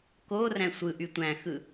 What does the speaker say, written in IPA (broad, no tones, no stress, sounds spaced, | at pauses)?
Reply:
k o r æ̃ sʷ ɯ ʔ y tʷ æ̃ x ɯ